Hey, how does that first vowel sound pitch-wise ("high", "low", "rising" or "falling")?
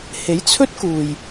rising